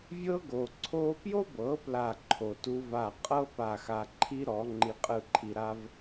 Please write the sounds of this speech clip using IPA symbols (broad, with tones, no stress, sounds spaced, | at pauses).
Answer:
vʲ ɤ˦ ɡ o˨ ǀʰ o˧ p j o˦ b ɤ˨˦ p l a˦˨ ǃʰ o˨ t u˦ v a˦˨ qʼ ɤ˦ p a˦˨ x a˧ ǃʰ i˦ ɾ ɔ˨˦ ŋ͡ǃ i˧ qʼ ɯ˦˨ ǃʰ i˧ ɾ a˦ v